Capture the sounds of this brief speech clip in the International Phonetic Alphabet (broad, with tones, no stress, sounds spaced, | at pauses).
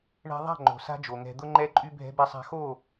ɳ ɛ̤˧ ðˤ a̤˦˨ ŋ͡ǃ o̤˨ s a̤˦ d͡ʒ o˨ ŋ ɛ̤˧ d̪ ʊ˦ ŋ͡ǃ ɛ˦ ǃʼ y˦ bʱ ɛ̤˧ b ɛ˧ sˤ a̤˧ x o˦˨